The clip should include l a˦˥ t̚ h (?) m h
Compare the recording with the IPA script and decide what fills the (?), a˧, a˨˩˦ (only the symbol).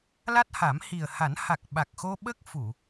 a˨˩˦